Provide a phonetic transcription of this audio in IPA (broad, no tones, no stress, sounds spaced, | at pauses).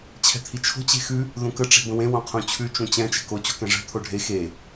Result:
t͡ɕʰ ɛ̤ t̪ʰ i t͡ʃʰ o̤ t͡ɕ e̤ x ʉ | ð ũ k ə ʈ͡ʂ e̤ b ə̃ w ẽ w õ qʰ ũ t͡ɕʰ ʉ t͡ʃ ũ t͡ɕ ɛ̃ t͡ʃ ɛ̤ k o t͡ɕ o̤ k ɛ̃ ʐ ɛ̤ t̪ʰ o ɖʱ e x e